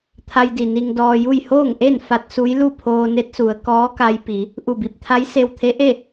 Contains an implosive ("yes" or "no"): no